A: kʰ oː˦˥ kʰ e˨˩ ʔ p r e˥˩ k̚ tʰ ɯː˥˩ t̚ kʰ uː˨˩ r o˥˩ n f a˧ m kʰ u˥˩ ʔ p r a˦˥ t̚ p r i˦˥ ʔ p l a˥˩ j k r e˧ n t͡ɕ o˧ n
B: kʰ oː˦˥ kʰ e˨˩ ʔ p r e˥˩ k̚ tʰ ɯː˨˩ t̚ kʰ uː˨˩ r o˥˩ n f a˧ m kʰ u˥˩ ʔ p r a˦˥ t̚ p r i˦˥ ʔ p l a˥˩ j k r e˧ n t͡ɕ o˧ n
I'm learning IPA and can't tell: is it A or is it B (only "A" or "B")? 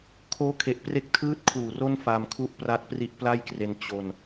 A